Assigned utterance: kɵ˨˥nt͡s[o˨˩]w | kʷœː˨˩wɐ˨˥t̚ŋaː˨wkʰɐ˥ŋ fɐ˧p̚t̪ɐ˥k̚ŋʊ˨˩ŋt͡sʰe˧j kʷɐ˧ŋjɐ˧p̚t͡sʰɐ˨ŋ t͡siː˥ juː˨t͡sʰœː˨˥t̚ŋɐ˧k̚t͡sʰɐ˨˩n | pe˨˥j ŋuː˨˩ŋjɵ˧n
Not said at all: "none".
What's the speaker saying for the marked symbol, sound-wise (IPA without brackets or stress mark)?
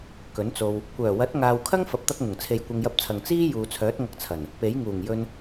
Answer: o˧